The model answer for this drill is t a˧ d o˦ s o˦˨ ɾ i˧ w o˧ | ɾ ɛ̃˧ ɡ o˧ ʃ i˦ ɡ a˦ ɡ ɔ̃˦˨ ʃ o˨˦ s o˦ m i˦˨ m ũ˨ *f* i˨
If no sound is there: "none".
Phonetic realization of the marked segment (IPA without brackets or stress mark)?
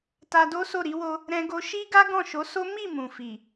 f